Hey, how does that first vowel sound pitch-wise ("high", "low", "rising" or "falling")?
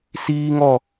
high